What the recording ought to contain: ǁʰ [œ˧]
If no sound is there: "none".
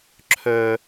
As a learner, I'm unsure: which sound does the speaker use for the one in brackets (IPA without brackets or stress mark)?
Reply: œ˧